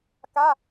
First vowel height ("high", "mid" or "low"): low